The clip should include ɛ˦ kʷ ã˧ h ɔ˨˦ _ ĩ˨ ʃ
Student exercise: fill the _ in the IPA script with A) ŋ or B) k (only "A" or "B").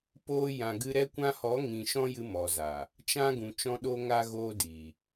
A